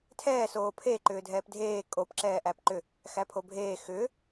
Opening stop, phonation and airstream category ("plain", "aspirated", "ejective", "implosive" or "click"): aspirated